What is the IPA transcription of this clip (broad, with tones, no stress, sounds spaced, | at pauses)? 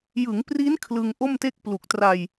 j ɯ˩˦ ŋ p r i˦˥ n kʰ l ɯ˧ ŋ ʔ o˥˩ m t e˥˩ k̚ p l u˨˩ k̚ t r a˧ j